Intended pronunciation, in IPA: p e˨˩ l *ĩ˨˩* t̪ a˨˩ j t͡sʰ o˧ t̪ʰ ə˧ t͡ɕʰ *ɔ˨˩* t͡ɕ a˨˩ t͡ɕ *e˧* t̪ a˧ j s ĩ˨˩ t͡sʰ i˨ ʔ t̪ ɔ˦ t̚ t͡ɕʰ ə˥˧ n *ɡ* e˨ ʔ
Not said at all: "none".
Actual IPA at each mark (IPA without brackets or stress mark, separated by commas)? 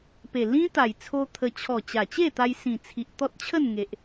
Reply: ĩ˦, ɔ˨˩, e˥˧, ŋ